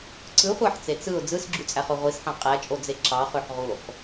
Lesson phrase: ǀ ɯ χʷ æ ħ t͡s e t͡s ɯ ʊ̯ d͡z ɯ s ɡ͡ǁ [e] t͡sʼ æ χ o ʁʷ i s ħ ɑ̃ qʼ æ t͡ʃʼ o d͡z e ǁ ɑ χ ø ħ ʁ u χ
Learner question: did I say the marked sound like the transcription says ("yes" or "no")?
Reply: no